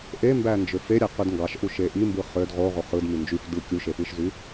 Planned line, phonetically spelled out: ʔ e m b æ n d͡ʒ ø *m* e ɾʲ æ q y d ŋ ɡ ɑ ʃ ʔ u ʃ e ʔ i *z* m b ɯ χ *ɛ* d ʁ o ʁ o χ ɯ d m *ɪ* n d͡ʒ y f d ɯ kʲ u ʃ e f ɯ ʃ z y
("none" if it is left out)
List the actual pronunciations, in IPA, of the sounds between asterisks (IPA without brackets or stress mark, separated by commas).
f, none, ø, y